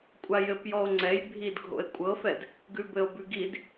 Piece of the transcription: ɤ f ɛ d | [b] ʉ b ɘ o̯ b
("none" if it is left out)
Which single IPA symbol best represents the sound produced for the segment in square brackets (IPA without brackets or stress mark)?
ɡ